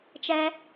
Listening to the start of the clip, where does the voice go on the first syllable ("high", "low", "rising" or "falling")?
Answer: high